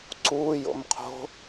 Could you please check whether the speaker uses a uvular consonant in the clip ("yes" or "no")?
yes